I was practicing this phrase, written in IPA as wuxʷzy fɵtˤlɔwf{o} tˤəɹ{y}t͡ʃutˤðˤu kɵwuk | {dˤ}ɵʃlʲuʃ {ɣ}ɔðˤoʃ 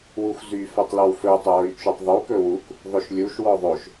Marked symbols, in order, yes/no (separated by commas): no, yes, no, no